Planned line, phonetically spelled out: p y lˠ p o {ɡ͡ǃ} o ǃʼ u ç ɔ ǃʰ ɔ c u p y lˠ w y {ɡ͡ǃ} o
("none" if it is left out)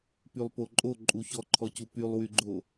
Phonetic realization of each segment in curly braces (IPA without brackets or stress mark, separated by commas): ǃʼ, ɡ͡ǃ